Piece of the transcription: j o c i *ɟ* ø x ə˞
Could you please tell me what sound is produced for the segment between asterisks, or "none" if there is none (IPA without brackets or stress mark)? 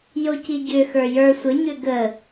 ɟ